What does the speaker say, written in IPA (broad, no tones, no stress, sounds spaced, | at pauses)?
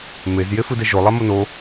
m e z j e f ɯ d ɛ ʒ o lˠ a m o n o